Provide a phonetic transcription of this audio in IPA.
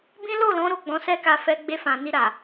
b ĩ˦ l o˦˨ l ɔ̃˨˦ ɾ o˦˨ ɡ͡b ɔ̃˨˦ s ɛ˦ k a˧ f ɛ˧ ɡ͡b e˧ f ã˨ n i˧ ɾ a˨

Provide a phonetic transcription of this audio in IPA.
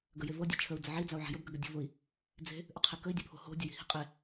ɡ ə j e v ɤ dʲ e t͡ʃʰ ə u̯ d͡z ə ʕ i d͡z a u̯ ʕ a̤ j ə b ɡ ə ɡ ə dʲ o̤ v ʊ i̯ | d͡z e̤ | ʔ ɵ qʰ e k ə i̯ dʲ ʊ pʰ o̤ h o̤ dʲ ʊ j i̤ h i̤ qʼ e

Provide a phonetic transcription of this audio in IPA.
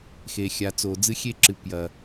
x e˨ xʲ a˨ t͡s oː˨ d͡z ɨ˦ xʲ e˦ ǁ ɨ˨ p j ɐ˨

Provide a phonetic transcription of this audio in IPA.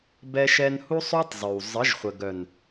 b ɛ˦ ʃ ɛ˦ n h u˦ sˤ o˦ tˤ zˤ ø˨ w zˤ ə˨˦ ʒ χʷ ə˨ ɡ œ˨ n

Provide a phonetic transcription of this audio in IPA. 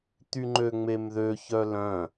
t̪ y ŋ͡ǃ ø ŋ͡m e m ð ø ç œ l œ̃

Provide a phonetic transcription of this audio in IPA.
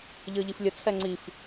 ʎ ə˞ ʎ i f lʲ ə t͡sʰ ɛ ŋ͡ǀ i f

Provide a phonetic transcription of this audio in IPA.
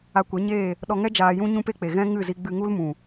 a˧ kʷ ɛ˨˦ ɲ eː˦˨ | ɗ ɔ˧ ŋ ɛ˦ d͡ʒ aː˧ j ũ˦ ɲ ũ˦ p e˦ k͡p e˨ ɣ ɛ̃˦ ŋ ɨ˦˨ z i˧ ɡ͡b ɨ˧ ŋ u˦ l m ũ˨

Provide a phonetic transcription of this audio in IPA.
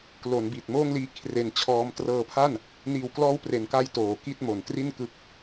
k l o˩˦ n b i˨˩ t̚ m oː˥˩ ŋ l iː˦˥ kʰ r e˧ n t͡ɕʰ ɔː˦˥ m t r ɤː˧ pʰ a˥˩ n | n iː˨˩ w k l ɔː˦˥ w p r e˩˦ n k a˧ j t oː˩˦ k i˥˩ t̚ m o˨˩ n t r i˥˩ n k ɯ˦˥ k̚

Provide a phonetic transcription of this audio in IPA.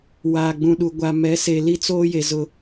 w aː˨ ɡ͡b ũ˨ ɗ u˨ ɡʷ a˨ m ɛ˨˦ s e˨ l i˦ t͡s oː˦ j e˨ z ʊ˦˨

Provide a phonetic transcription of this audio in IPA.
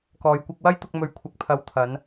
k ɔː˨ j kʷ ɐ˧ k̚ w ɐ˥ j t̪ ʊ˧ k̚ m ɵ˨˧ ɥ kʷʰ ɐ˨ k̚ pʰ ɐ˨˧ w t̪ʰ ɐ˨˧ n

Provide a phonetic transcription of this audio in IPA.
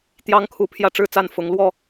t̪ j ɑ˦ ŋ kʰ u˨˦ pʰ j ä˦ ʈ͡ʂ ɻ̩˦ t͡s a˥˨ n f ʊ˨˦ ŋ l w ɔ˥˨

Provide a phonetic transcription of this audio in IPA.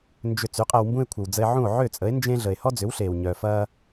n d͡ʒ ʏ˧ t͡s y˩˥ qʼ ɛ˧ w m b ũ˥ e̯ kʷʰ ə˩ w d͡z ə˧ e̯ ʕ ũ˥˩ o̯ ʕ ø˥˩ t͡sʼ ə˩˥ e̯ n d͡ʒ ẽ˥ ɮ ə˩ e̯ h ɔ˥ d͡z ʏ˩˥ w ɬ eː˩ w ɲ œ˩ f ɐː˧

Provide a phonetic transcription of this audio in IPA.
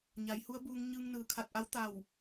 ɲ a˩˧ j h u˧˥ ə̯ b uː˧ ŋ ɲ ɯː˧ ŋ n ɯː˩ kʰ a˧˩ t̚ ʔ a˧˥ w t̪ a˧˩ w

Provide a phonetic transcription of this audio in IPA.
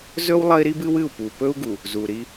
z ɵ˦ w lˠ ɐ˦ i̯ ɾ i˦ b ɨ˦ w ɨ˦˨ u̯ p u˨ p ɵ˦ u̯ ɡ u˨ | z u˨ ɾ i˦

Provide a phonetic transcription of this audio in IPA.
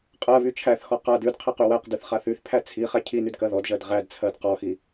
qʼ ɜ β y t͡ʃʰ æ θ x ɔ q a d ʉ d qʰ æ q y w æ q d ʉ θ χ a θ y θ pʰ æ t͡sʰ i χ æ cʰ i n y d k ɜ ð ɔ d ʒ ɜ d ʁ æ d t͡sʰ ɜ d q ɔ x i

